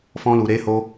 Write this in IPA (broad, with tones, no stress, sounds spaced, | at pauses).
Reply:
f ɔ̃˦ l u˧ ɾ e˦ h o˦